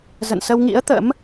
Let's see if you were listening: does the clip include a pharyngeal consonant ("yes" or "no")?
no